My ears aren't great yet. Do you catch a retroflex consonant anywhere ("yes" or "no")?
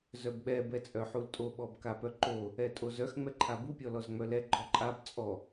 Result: no